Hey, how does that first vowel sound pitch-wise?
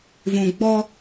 low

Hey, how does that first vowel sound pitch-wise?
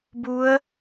rising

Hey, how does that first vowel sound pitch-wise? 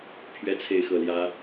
high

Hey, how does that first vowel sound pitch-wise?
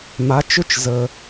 rising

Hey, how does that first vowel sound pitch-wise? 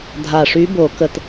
low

